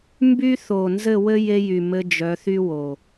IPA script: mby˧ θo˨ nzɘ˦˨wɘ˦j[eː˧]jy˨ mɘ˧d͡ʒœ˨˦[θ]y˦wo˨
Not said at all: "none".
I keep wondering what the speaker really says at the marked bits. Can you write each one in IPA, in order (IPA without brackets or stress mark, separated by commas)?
e˧, θ